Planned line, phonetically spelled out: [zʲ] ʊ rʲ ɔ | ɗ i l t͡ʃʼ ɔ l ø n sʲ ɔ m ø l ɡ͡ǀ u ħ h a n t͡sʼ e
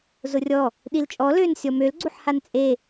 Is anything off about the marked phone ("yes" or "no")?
yes